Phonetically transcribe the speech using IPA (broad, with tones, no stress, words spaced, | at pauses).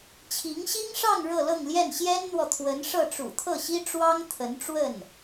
t͡ɕʰi˧˥ŋɕi˥ŋʂɑ˥˧ŋ ɻɤ˥˧lɤ˥˧ŋljɛ˥˩n ɕjɛ˥nn̪wɔ˨t̪ʰwə˧˥n ʂɤ˥˩ʈ͡ʂṵ˨˩ t̪ʰɤ˥˩ɕi˥ ʈ͡ʂwɑ˥ŋ t̪ʰə˧˥nʈ͡ʂwə˥˩n